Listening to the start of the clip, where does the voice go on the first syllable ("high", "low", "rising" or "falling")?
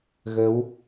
rising